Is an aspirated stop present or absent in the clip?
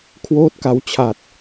present